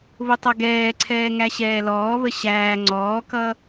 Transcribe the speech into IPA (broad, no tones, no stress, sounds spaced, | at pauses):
β ʊ tˤ ʌ ɡ ɛː ǀʰ ɛː ŋ æ ɕ ɛː l ɔː β ə ɕ æː ŋ͡ǀ ɔː k ʌ